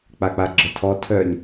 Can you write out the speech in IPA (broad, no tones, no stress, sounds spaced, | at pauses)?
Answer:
k͡p a k͡p a ɡ͡ǁ ə tʰ ɔ tʰ œ lʲ